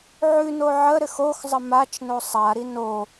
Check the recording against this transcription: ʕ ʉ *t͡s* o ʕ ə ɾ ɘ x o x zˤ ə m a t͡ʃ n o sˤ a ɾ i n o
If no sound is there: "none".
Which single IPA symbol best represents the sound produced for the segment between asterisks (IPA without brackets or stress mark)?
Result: n